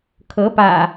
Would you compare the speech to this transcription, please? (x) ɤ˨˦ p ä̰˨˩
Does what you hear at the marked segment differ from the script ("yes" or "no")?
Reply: yes